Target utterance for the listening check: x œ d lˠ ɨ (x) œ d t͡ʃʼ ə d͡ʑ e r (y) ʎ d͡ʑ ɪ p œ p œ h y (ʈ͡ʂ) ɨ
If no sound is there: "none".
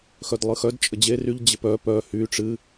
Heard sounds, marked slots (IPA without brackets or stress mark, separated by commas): x, y, ʈ͡ʂ